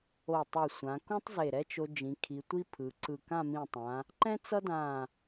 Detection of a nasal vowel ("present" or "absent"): present